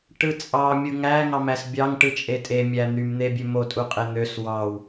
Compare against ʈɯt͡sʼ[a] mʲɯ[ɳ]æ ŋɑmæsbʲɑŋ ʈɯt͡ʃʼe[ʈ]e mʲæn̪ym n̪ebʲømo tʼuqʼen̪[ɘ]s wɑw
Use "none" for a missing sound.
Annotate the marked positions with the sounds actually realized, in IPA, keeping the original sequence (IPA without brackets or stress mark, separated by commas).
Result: ɑ, ŋ, tʼ, ø